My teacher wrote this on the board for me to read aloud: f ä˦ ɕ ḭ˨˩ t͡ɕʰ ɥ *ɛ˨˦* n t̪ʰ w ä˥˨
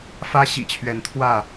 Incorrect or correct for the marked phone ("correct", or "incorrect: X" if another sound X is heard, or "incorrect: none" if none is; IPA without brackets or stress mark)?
correct